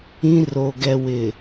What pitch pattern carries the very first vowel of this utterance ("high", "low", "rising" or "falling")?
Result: high